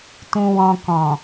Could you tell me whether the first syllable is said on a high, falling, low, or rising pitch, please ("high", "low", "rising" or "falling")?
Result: low